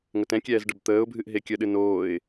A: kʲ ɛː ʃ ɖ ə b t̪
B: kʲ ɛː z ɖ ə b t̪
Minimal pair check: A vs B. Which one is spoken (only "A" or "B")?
B